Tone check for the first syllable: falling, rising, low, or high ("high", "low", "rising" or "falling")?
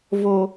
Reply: low